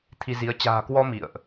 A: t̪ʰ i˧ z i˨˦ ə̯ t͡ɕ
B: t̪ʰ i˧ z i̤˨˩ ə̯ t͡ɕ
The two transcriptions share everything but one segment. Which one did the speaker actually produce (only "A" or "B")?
A